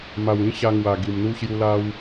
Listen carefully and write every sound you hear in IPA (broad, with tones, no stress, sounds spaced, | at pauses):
m a˨˩ w ĩ˦ ɕ a˧ ŋ w a˨˩ ɡ i˨˩ m n̪ u˦ ɕ j u˦ l a˦ w